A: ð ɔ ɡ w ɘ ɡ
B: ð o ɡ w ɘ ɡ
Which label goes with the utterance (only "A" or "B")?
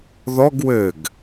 A